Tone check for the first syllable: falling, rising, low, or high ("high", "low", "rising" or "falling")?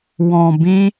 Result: low